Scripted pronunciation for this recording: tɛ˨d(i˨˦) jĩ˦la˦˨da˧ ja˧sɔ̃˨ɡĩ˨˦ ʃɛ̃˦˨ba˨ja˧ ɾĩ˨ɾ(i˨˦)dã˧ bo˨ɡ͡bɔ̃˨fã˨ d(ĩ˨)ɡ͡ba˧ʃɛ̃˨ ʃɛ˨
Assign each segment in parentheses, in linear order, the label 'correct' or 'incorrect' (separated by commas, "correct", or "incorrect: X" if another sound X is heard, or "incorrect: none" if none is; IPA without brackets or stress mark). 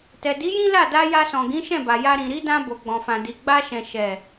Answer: correct, correct, incorrect: i˨